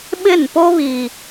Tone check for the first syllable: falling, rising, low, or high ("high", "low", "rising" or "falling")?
falling